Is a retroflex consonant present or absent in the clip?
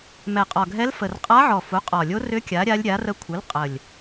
absent